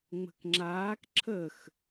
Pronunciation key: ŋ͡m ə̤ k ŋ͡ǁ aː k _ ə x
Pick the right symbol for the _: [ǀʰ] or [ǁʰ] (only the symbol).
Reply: ǁʰ